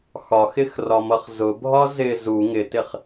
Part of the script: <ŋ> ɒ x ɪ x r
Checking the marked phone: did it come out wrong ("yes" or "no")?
yes